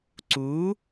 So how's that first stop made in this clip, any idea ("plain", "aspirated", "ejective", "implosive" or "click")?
click